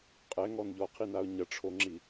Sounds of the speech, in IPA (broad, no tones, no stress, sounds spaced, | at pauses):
qʼ ɛ ŋ ɔ n ʎ ɔ qʰ i n a ʊ̯ ɲ ɐ ʈ͡ʂʰ o ŋ͡ǁ i